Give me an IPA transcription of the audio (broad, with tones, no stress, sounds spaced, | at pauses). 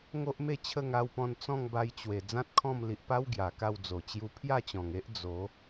ŋ o˦ ʔ m e˥˧ t͡ɕʰ ə˥˧ ŋ a˧ w p ɔ̃˧ n t͡s ɔ̃˥˧ ŋ b a˧ j t͡ɕ w e˨˩ d͡z ã˦ t̚ kʰ ɔ̃˥˧ m l i˨ ʔ p a˦ w ɡ j a˨˩ k a˥˧ w d͡z o˨˩ t͡ɕ j u˧ pʰ j a˥˧ t͡ɕ ɔ̃˨˩ ŋ e˦ ʔ d͡z o˨˦